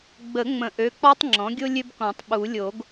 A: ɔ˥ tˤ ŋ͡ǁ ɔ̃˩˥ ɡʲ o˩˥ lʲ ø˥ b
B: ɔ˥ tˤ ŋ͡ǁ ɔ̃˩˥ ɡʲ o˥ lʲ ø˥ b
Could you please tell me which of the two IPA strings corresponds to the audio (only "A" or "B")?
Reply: B